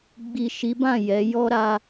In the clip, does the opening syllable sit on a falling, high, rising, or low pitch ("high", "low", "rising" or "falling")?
low